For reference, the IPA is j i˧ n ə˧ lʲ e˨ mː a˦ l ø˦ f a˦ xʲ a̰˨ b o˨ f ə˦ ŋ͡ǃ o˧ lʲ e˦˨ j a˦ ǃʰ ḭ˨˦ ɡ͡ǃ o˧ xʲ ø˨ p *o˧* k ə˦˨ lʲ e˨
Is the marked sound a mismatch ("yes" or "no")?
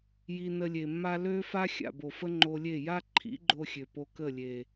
no